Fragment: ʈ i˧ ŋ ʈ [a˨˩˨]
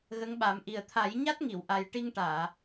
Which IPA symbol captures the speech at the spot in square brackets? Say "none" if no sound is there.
aː˨˩˨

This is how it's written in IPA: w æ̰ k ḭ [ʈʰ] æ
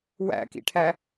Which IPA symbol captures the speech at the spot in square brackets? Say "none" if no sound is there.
ʈʰ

